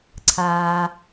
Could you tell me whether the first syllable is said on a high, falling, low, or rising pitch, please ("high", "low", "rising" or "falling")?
low